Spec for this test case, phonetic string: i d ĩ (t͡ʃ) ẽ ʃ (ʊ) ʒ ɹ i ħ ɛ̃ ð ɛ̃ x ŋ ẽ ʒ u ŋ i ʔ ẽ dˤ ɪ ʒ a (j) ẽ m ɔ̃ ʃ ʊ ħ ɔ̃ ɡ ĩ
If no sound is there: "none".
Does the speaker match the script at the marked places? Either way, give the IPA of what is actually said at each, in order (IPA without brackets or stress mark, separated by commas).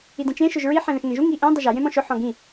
t͡ʃ, ʊ, j